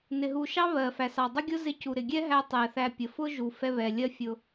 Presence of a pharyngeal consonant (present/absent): absent